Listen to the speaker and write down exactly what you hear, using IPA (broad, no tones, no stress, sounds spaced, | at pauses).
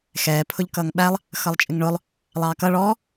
x ɛː pʰ ʊ ʎ k ʌː ŋ ɓ æ lˠ | x ʌ lˠ t͡ʃʼ ɪ ŋ ɳ ʊ lˠ | lˠ ɑː k ʌ ɭ ɔː